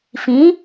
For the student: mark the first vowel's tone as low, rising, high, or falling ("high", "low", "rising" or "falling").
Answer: rising